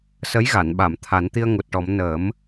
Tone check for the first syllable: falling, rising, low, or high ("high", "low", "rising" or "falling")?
rising